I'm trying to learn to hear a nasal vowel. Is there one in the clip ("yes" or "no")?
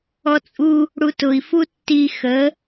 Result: no